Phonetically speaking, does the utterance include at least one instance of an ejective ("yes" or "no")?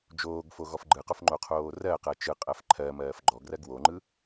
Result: yes